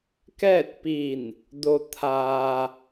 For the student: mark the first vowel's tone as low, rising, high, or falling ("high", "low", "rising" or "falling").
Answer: falling